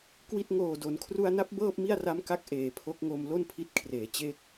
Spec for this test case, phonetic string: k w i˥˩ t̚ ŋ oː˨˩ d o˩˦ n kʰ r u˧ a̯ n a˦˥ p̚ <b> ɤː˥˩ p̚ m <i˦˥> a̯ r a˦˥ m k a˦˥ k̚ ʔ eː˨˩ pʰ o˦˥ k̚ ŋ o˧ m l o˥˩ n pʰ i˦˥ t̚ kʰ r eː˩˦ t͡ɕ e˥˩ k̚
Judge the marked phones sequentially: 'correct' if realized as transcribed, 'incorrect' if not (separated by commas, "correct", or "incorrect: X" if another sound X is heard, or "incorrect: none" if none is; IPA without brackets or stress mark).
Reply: correct, incorrect: i˥˩